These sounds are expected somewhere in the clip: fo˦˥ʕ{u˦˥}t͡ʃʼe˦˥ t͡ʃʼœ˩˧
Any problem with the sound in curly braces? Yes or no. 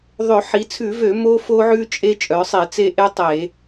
yes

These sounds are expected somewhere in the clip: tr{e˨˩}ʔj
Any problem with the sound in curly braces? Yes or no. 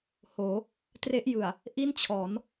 yes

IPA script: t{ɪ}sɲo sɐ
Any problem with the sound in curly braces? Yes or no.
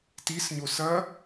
yes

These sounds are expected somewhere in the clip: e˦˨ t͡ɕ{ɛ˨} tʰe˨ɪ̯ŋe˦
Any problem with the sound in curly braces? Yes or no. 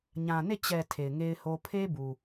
no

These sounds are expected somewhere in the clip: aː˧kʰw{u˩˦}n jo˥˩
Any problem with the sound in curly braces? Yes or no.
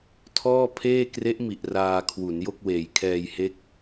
no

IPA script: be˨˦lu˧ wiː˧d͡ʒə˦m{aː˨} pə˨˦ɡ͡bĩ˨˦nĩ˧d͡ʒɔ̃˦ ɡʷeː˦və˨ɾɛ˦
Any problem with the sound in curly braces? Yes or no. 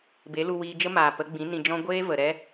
no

